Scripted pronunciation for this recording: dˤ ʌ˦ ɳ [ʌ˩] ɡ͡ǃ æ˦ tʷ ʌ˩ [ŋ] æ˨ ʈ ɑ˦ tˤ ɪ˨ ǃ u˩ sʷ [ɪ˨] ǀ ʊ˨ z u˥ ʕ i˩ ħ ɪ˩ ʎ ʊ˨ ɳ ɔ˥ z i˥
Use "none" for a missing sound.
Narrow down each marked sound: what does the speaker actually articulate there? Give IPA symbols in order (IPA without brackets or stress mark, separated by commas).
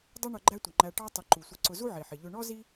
ʌ˨, ŋ͡ǃ, ɪ˨